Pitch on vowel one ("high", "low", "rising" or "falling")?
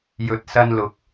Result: rising